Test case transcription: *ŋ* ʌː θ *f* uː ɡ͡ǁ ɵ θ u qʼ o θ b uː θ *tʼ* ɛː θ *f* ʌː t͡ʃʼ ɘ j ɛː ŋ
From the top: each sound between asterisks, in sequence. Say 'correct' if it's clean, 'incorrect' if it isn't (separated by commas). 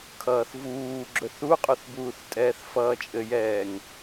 incorrect, incorrect, correct, correct